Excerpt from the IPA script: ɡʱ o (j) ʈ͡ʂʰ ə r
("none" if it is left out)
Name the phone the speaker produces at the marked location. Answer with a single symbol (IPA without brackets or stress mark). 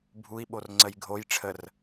j